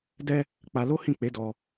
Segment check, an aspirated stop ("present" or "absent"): absent